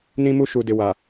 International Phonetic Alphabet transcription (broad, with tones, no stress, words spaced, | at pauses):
nĩ˦mu˦ʃu˨ dɪ˨wa˨